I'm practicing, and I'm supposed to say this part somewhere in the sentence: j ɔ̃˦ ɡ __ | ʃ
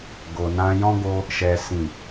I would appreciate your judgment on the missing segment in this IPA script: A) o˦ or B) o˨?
A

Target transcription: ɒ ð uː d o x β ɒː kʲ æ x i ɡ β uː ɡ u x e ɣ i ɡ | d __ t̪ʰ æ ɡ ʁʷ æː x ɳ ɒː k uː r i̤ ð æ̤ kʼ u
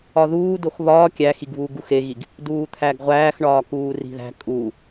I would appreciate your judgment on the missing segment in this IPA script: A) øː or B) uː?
B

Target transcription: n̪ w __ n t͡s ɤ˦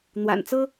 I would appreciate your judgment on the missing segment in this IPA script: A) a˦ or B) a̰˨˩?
B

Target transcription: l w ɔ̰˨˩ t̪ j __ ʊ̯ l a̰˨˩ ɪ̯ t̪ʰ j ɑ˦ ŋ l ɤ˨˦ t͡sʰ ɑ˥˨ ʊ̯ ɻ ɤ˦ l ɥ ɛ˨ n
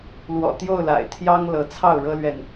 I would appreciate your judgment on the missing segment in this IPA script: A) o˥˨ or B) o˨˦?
A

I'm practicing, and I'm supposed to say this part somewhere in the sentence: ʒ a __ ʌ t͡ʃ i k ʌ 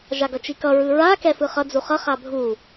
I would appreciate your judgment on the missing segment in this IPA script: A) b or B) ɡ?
B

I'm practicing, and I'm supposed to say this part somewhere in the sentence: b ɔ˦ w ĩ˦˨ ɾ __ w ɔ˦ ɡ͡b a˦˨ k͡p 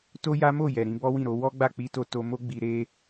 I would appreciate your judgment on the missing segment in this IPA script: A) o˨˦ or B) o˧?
A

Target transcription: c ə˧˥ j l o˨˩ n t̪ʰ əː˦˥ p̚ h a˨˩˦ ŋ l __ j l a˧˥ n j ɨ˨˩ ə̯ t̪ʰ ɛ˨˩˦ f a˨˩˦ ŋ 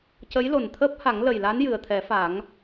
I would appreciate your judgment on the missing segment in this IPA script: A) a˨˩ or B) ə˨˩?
B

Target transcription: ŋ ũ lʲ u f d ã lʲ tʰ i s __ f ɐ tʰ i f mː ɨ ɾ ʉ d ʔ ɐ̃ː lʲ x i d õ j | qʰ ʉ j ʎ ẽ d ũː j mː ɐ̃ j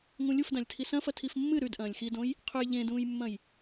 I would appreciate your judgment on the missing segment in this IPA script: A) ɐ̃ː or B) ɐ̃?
B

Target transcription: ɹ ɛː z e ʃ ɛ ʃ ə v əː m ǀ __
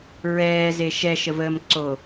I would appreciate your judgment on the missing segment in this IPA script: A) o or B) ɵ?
A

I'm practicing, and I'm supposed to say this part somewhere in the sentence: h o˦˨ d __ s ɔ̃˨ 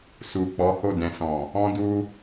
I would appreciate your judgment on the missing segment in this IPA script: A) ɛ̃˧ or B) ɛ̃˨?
B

